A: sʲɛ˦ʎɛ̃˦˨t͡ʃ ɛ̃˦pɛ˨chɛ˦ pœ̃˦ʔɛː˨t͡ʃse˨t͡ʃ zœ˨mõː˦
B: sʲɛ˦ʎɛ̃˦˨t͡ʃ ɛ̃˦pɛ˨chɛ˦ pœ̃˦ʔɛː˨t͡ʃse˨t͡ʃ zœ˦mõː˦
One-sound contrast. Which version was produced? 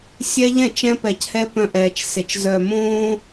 A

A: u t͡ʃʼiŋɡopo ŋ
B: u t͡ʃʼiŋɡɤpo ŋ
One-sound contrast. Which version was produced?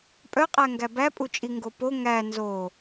A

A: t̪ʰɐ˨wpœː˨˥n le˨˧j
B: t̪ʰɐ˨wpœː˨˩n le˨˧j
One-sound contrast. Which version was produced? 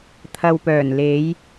B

